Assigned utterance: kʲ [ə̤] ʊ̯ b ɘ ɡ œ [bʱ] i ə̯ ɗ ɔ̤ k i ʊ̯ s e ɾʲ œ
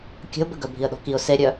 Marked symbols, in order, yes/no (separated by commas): yes, yes